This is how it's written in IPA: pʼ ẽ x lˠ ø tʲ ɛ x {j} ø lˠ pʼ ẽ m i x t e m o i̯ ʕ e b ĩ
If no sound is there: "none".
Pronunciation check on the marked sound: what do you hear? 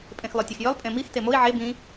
j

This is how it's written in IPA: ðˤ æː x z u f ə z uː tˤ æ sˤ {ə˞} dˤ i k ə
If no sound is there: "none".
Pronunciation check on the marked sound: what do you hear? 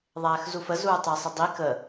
ə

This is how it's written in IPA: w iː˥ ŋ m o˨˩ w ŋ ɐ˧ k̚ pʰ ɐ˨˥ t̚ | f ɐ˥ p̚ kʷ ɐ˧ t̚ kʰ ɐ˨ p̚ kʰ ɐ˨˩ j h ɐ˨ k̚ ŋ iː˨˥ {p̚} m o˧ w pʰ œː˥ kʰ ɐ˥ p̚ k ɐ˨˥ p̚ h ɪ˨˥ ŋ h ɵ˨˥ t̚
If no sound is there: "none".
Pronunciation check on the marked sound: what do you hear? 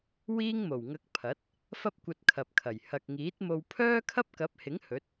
t̚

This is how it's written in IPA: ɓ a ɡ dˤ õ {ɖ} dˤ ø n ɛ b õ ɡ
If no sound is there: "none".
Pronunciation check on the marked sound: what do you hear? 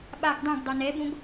ɡ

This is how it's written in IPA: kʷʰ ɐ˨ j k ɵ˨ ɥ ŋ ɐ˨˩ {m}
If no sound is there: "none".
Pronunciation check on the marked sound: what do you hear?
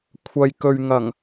ŋ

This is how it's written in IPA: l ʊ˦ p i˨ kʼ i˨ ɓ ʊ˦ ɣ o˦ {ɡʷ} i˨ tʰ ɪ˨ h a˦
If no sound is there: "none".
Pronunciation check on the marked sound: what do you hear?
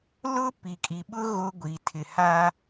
ɡʷ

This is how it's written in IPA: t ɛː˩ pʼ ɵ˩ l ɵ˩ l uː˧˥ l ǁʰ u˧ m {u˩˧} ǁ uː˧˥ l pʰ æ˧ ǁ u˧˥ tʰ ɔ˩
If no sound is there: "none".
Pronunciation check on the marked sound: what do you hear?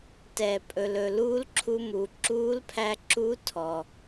u˩˧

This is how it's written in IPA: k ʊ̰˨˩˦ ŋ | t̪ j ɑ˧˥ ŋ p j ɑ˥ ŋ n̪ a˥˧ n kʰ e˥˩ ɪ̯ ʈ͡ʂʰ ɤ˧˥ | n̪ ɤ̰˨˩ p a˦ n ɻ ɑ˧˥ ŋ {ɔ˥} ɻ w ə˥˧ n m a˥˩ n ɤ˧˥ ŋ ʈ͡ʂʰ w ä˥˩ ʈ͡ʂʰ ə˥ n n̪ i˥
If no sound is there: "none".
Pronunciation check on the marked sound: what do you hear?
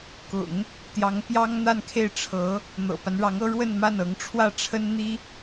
ɤ˥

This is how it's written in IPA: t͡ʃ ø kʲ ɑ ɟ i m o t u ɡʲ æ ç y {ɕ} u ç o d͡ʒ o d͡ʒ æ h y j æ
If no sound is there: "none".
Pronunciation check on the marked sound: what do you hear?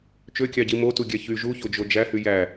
ʒ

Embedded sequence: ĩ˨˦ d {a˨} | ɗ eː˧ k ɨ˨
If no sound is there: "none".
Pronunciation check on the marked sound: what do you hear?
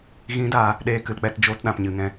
aː˨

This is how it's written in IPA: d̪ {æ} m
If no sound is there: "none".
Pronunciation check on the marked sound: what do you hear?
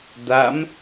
a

